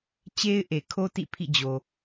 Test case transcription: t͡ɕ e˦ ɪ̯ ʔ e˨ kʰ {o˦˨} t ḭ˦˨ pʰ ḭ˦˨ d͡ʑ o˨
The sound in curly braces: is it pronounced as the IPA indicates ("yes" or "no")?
no